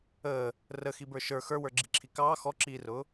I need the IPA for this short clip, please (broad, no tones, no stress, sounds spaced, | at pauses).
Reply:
əː | r ə x i b ə˞ ʃ ə˞ x ə˞ w ə˞ ɡ͡ǁ i ǁʰ i k ɑː x ɔ ǁ iː r ʊː